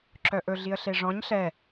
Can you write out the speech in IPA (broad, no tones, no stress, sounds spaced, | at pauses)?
ǁ œ ʔ ɵ ɮ i ə̯ ɬ e ʐ ɔ̃ ɲ ɬ ɛ